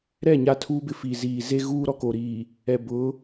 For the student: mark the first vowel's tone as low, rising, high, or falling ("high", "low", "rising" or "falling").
falling